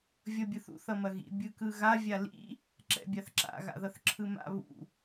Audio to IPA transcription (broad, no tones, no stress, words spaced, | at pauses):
vʲʌbʲɯθṵθ ʌmɐɣḭ bʲɯkɯɣa vʲalḭ | ǁɛ̰bʲaθǁa̰ ɣa̰ðʌθǁʰɯma̰ βṵ